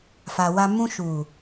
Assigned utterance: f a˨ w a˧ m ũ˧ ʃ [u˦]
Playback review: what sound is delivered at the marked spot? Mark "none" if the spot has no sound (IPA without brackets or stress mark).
u˨